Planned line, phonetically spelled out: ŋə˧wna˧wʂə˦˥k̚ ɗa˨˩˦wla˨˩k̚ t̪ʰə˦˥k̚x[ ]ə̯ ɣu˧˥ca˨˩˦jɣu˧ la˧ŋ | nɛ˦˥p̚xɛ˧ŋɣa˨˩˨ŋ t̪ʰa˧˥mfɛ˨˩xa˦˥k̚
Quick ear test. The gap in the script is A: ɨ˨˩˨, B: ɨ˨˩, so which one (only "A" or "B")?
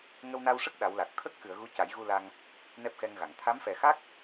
A